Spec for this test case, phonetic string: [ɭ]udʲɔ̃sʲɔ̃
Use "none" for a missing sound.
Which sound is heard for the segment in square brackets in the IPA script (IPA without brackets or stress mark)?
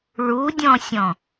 ɭ